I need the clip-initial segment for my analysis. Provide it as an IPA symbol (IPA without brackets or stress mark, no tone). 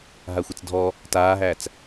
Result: ɦ